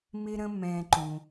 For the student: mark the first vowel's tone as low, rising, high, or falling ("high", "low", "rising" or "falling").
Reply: high